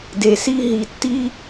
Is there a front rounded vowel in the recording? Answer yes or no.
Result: no